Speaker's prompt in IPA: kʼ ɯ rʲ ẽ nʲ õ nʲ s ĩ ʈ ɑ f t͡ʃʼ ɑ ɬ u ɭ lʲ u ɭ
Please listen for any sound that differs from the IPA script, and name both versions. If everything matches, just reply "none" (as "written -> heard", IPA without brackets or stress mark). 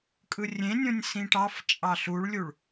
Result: none